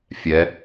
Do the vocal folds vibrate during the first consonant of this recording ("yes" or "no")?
no